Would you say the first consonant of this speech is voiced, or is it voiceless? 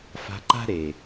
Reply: voiceless